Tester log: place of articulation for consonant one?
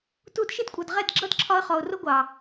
alveolar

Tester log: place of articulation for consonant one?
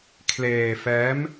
velar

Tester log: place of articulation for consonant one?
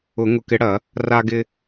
velar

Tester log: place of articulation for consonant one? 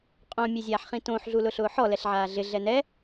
uvular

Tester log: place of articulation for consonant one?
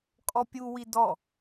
velar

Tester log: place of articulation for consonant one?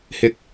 glottal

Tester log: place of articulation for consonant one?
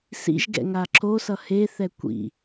alveolar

